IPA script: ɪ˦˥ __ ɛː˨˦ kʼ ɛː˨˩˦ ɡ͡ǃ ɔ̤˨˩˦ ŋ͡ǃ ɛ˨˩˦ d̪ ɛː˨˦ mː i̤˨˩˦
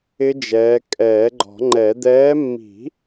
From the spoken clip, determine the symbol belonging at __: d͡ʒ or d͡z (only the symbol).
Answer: d͡ʒ